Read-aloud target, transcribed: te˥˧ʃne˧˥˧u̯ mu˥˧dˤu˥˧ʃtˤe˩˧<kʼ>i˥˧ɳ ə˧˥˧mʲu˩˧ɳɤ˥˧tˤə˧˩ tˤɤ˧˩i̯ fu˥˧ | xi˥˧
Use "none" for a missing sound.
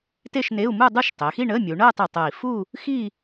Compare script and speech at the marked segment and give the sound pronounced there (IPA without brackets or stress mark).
x